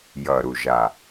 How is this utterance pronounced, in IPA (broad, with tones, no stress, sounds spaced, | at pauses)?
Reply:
j ʌ˨˩ ɾ u˨˩ ʒ a˨˩